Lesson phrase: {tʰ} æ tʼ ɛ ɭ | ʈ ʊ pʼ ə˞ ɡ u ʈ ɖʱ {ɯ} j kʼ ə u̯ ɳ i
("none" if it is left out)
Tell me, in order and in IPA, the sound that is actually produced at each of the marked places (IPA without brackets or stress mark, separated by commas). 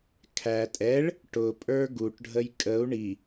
kʰ, ə